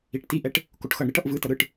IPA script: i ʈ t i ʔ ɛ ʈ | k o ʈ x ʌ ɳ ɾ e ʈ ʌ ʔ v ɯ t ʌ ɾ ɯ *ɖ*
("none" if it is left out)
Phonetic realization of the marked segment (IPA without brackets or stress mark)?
ʈ